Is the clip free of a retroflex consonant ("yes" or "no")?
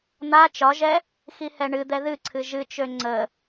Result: no